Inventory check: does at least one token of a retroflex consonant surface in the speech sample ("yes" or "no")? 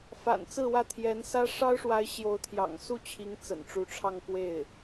yes